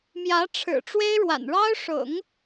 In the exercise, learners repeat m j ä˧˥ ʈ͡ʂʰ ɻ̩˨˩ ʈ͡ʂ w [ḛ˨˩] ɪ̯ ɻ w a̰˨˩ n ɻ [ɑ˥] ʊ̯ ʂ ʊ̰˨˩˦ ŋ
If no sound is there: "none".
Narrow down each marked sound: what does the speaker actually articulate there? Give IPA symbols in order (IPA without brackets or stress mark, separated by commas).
e˥, ɑ˥